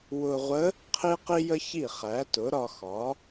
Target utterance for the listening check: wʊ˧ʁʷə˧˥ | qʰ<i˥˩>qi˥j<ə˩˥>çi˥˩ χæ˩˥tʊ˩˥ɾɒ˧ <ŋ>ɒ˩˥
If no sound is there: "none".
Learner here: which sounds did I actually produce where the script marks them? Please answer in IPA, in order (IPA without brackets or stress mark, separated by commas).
i˥, ə˥, x